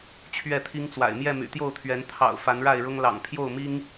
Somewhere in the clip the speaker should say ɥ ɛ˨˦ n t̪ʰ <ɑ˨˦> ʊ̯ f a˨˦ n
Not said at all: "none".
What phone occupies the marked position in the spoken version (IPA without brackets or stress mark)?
ɑ̰˨˩